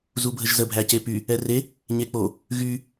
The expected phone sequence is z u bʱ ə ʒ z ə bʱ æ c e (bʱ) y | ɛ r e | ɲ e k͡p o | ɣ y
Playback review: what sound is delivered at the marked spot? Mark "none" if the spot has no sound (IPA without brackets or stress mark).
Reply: p